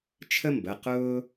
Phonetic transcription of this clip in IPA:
t͡ʃʰə˥mbə˩˧˩ qʊː˥

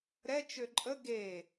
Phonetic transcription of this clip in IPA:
ɾɛ t͡ʃøǃʼə ɡe

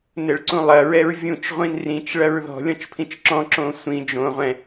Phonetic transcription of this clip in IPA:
nɘɭǀũlˠɐ ɹɛɹvʲũt͡ʃ ʁʷĩnrĩt͡ʃ ɭɐɹðɔ̤ lʲɔ̃t͡ʃpʰĩt͡ʃǁɔ̃ ǁõsʷĩ d͡ʒõ ʁʷɛ̃

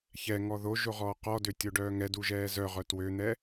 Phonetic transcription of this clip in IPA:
çɛŋɔ ðoʒoʁɔː qɔdøtʲoɖœː ŋɛduʒɛː zœʁœ twøn̪ɛ

